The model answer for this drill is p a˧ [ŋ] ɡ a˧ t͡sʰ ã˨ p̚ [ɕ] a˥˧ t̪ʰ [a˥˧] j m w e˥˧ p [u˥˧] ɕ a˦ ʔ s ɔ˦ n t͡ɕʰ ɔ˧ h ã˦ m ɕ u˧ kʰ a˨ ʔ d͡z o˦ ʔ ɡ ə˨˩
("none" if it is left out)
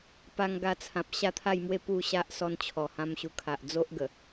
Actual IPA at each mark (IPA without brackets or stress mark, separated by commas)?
ŋ, ɕ, a˥˧, u˥˧